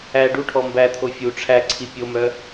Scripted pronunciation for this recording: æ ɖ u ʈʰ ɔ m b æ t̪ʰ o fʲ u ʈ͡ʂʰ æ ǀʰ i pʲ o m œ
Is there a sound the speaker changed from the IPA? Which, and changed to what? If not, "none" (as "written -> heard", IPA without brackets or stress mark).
none